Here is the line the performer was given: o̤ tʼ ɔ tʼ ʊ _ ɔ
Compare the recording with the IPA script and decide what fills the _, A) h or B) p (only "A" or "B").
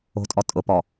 B